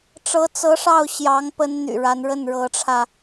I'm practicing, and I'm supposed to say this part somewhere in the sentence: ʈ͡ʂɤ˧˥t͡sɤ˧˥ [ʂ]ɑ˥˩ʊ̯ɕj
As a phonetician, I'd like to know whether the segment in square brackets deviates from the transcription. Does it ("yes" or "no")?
no